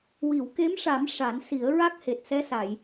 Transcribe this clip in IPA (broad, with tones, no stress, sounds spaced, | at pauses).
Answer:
w i˨˩˨ w k e˧˥ m ʂ a˨˩˦ m ʂ a˨˩˦ n s i˨˩˦ ə̯ ɹ a˦˥ k̚ h e˨˩ t̚ s ɛ˧˥ s a˨˩˨ j